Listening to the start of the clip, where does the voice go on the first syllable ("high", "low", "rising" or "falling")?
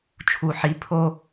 low